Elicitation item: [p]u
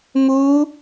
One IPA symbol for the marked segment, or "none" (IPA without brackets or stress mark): m